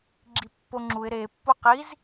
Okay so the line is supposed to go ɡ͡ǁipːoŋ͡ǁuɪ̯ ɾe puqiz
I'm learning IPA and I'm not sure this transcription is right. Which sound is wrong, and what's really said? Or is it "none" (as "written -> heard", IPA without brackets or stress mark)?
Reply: p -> pː